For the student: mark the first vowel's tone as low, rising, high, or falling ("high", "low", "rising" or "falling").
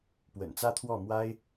low